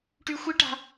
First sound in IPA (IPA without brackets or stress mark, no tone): ʈ